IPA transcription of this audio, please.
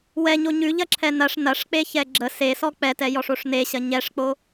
w ɛ ɲ o ɲ ʉ ʎ ɐ ǁʰ ɛ n ɐ ʂ n ɐ ʂ k͡p e ç ɛ ɡ͡ǁ ə s e s ɔ k͡p ɛ t ɛ j ɔ ʂ o ʂ n e ɕ ɐ ɲ ɛ ʂ k͡p o

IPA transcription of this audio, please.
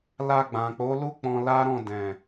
l a˧ ɡ͡b ã˨ k͡p o˨˦ l u˦ k͡p ɔ̃˧ l a˦ ɾ ɔ̃˦˨ d ɛ̃˨

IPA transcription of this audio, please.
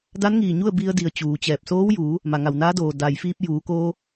d a˧˥ n ŋ iː˧˩ ɲ u˥˨ ə̯ b i˧ ə̯ d i˩ ə̯ t͡ɕ uː˩˧ t͡ɕ ɛː˧˩ p̚ s oː˧˥ w j uː˩˧ | m a˩ ŋ a˩ w n aː˧˥ d oː˩ d a˩ j f iː˧ p̚ j uː˩˧ k oː˧

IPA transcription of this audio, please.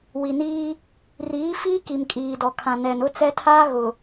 w i˨ n iː˦ | r iː˨˦ f iː˦ k i˨ m kʼ iː˨ d ɔ˨ kʰ ã˨ n ɛ˨ n ʊ˦ t͡s ɛ˦ tʰ aː˦ ɣ ʊ˨

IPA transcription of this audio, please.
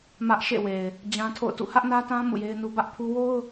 m ä˦ ʔ ʃ ḛ˦˨ w e˨ ɪ̯ | d͡ʑ ã˦ tʰ o̰˦˨ ʊ̯ t ṵ˦˨ h ä˦ ʔ n ä˦ t ã˦ m ṵ˦˨ j e˦ ɪ̯ n u˦ b ä˦ ʔ pʰ u˦ w o˦ ʊ̯

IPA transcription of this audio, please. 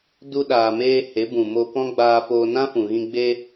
d u˧ ɗ aː˨ m eː˧ h e˨˦ b ũ˨ m o˧ p ɔ̃˦ ɡ͡b aː˧ f oː˧ n ã˦ f ũ˨ ɣ ĩ˧ ɡ͡b e˧

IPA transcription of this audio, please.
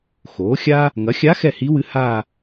x oː˩˥ xʲ a˥ | ŋ ɐ˩˥ xʲ a˧˥ x ɛ˥˩ h i˧˥ w ɨ˧˥ h a˥˧

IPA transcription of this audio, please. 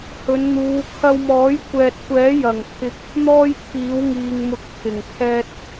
h ɵ˨˧ n n̪ uː˨˧ kʰ ɐ˧ w m ɔː˨˥ j kʷ ɛː˨ t̚ kʷ ɛː˨˥ j ɐ˨˩ ŋ pʰ ɪ˨ k̚ | n̪ ɔː˥ j t̪ʰ iː˨˥ w ŋ iː˨ ŋ m ʊ˨˥ k̚ t̪ʰ ɪ˨˩ ŋ kʰ ɛː˧ t̚

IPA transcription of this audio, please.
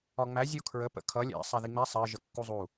ɒ ŋ͡m æ zʲ u kʰ ɹ ə p ə̰ kʰ ʌ lʲ ɛ̰ sˤ æ ð i ŋ͡m ɛ sˤ ɜ ʒ ə kː u zˤ u

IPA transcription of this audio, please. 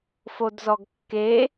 f o d z ɔ ɡ kː e

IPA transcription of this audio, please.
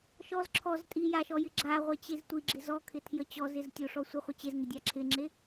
ʃ ɔ z ǁʰ ɔ z tʼ i j a ʃ ɔ j ɪ ɡ͡ǁ a ʁʷ e t͡ɕ e z tʷ i ɡ͡ǁ ɪ z ɔ kʰ ɪ tʰ j ə t͡ɕ ɔ z ɪ z tʲ o ʂ ɔ sʷ i χʷ ɪ t͡ɕ e z ŋ ɪ dʲ a ǁʰ ɪ ŋ͡ǁ e

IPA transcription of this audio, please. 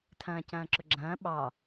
tʰ ɐ̃ː c ɐ̃ː ǁ ʊ ɡ͡ǁ ɐ̃ː ɓ ɑ

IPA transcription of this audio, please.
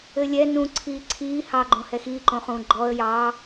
ɘ lʲ ɛ n ũ ǀʰ iː ǀʰ iː h ɑ ɡ͡ǃ õ h ɛ x iː ǃ õ χ ũː ɡ͡ǃ ɔ ə̯ j ɑ

